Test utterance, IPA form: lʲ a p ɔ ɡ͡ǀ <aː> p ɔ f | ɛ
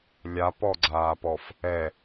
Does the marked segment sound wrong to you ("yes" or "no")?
no